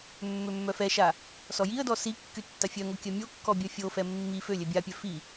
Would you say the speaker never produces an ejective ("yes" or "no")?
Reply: yes